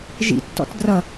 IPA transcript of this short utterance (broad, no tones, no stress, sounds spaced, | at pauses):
ʒ ḭ tː ɔ̰ t d r ʌ